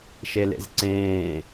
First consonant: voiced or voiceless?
voiceless